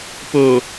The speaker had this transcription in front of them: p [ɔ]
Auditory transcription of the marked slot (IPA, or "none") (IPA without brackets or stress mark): o